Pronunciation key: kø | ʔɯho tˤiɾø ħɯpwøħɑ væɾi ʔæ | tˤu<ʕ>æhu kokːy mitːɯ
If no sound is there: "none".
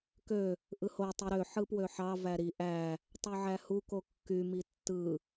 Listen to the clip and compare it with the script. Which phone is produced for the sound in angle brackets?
ʕ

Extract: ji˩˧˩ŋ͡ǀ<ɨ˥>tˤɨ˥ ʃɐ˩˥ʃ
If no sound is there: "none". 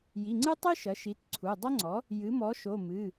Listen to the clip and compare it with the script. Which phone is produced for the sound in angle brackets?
ɨ˥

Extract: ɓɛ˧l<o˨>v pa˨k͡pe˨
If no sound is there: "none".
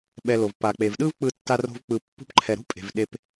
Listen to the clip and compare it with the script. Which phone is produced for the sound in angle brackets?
o˨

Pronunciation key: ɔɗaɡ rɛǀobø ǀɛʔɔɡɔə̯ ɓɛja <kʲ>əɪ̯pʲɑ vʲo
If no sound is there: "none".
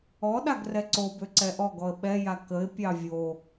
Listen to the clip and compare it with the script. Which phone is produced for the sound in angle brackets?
k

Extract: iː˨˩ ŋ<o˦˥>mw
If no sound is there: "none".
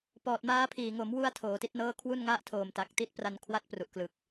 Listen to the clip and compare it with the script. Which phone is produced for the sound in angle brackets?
o˩˦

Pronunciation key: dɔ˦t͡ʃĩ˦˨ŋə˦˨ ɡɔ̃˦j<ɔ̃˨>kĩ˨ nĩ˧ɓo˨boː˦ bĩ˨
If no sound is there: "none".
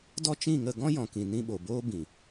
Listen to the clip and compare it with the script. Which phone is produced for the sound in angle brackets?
ɔ̃˨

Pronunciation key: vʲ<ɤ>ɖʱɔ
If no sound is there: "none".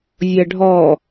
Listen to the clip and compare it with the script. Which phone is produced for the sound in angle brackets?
ɤ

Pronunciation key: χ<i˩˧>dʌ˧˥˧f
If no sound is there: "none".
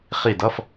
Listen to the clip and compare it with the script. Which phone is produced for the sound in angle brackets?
i˦˨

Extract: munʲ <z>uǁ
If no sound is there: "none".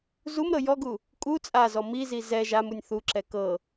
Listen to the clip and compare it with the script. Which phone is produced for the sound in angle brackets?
θ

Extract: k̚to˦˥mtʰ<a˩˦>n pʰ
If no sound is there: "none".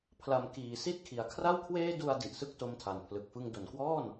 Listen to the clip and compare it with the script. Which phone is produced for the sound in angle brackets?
a˨˩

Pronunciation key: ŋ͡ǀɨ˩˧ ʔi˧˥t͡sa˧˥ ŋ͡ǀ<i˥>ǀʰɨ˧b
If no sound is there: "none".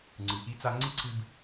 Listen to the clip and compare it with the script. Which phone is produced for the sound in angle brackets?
i˥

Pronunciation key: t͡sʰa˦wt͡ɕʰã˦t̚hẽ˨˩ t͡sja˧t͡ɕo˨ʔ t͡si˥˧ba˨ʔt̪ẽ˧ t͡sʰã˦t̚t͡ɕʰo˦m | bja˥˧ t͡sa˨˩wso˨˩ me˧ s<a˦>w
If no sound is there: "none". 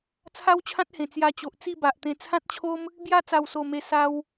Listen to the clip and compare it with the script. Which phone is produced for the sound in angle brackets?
a˦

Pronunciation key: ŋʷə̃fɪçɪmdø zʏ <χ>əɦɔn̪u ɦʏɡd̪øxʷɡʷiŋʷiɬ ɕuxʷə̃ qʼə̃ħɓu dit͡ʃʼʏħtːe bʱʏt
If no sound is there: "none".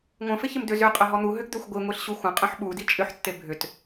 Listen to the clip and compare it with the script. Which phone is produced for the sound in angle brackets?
qʼ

